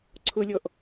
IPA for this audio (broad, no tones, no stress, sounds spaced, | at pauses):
ǀʰ ʊ lʲ ɔ ʔ